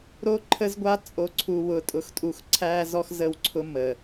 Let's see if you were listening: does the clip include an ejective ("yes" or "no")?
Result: yes